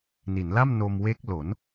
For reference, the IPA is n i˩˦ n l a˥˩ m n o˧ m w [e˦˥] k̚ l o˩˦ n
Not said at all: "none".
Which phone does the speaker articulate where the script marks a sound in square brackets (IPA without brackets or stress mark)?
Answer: e˦˥